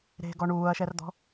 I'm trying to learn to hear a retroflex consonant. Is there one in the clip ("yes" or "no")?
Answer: yes